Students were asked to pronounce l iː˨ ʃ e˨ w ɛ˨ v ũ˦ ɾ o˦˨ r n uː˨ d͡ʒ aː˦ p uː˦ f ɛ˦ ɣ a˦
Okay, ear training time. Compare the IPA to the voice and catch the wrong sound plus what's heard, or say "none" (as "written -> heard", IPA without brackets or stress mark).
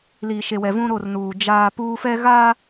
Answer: none